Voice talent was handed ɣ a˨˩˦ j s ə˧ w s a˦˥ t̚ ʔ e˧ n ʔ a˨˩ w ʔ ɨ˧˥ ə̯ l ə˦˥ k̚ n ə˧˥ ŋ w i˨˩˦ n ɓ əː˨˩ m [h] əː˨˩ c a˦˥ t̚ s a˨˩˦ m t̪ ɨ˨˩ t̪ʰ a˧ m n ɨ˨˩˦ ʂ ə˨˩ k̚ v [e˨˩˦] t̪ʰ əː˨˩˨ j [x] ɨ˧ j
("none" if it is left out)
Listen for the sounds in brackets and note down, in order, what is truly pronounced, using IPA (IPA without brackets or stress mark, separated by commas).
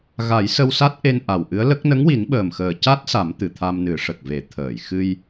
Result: x, e˨˩˦, x